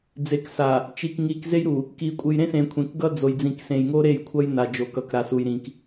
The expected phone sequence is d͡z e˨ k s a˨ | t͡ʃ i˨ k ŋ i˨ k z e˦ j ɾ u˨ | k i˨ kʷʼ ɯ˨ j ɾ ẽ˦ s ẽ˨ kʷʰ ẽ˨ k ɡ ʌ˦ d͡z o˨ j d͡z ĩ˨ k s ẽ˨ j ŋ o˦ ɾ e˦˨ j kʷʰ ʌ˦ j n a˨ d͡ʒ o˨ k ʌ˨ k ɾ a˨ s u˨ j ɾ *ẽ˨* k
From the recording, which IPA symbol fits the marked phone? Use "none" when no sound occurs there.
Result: ĩ˨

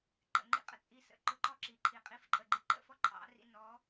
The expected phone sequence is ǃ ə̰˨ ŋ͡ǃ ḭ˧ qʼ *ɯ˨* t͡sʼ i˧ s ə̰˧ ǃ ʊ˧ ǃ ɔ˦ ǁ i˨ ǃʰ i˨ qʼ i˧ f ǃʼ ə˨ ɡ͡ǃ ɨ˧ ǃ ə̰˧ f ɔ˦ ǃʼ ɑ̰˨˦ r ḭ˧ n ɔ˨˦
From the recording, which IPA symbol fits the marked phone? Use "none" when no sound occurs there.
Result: ə˨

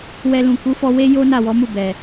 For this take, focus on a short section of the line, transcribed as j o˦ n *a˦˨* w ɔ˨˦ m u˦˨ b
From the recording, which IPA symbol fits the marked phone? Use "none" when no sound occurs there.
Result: a˦˨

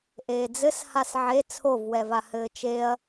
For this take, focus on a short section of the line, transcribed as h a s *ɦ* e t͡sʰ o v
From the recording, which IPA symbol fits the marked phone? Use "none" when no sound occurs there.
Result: ʕ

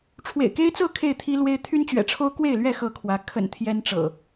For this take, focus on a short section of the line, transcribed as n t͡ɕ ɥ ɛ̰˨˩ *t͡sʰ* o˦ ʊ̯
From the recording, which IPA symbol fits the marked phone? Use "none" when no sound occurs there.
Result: ʈ͡ʂʰ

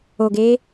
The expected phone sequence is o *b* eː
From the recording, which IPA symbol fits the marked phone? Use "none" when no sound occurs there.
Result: ɡ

